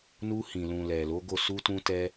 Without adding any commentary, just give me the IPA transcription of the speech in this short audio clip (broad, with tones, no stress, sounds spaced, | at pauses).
n u˧ h ĩ˨ l ũ˨ l ɛ˨ l o˨˦ ɡ o˦˨ s u˧ t ũ˧ t ɛ˧